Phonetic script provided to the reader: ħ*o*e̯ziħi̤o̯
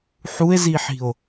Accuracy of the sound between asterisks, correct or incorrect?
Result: incorrect